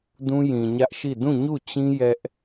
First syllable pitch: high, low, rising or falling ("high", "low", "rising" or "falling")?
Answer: high